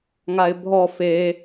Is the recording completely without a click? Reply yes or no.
yes